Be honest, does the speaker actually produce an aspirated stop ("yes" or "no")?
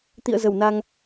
no